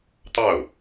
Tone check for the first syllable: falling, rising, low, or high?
falling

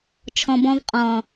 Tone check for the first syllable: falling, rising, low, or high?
low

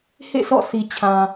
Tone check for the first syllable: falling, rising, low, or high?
falling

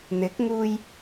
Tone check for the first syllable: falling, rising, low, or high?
rising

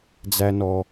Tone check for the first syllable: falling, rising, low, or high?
high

